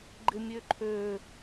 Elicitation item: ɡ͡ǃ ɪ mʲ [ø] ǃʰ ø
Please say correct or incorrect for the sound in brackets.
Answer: correct